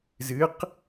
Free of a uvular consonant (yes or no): no